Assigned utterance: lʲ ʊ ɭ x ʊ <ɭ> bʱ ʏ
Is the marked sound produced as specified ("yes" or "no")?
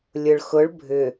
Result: yes